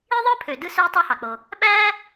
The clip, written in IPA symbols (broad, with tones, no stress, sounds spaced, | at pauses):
i˥ ðˤ ɯ˥ pʰ ø˩ d ɯ˥ s ø˥ j tˤ ɑ˥ h ɑ˩ k͡p o˩ | ɓ æː˥